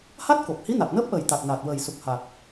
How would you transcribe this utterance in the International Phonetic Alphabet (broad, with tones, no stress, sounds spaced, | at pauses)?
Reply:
h a˦˥ t̚ k o˨˩ p̚ h i˧˥ n a˨˩ t̚ n əː˦˥ p̚ ʔ əː˨˩ j t̪ a˨˩ t̚ n aː˨˩ t̚ w əː˨˩ j s u˨˩ k̚ h a˨˩ k̚